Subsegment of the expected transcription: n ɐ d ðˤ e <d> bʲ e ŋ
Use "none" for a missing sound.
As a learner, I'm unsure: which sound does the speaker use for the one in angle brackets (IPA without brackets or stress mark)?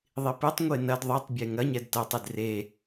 tˤ